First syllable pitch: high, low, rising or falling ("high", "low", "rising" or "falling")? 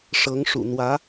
rising